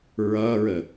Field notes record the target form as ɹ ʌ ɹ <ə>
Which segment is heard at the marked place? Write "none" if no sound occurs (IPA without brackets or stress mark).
ə